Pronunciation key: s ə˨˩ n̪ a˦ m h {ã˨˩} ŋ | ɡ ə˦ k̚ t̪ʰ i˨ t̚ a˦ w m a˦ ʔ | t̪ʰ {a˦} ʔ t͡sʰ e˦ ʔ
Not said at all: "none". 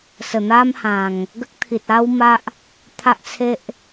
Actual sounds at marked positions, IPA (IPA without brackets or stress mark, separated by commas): ã˨˩, a˦